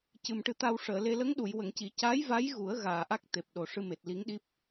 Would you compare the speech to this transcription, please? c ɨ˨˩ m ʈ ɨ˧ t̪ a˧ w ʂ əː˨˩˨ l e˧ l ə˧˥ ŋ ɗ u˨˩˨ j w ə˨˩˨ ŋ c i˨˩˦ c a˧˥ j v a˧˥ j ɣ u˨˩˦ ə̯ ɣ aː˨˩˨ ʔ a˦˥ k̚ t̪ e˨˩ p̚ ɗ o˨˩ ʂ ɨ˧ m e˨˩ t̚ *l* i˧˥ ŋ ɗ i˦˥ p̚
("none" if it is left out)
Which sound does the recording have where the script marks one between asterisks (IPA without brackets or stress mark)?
l